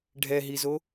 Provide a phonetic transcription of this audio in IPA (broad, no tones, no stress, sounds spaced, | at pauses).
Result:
ɖʱ ɛ ɦ i z o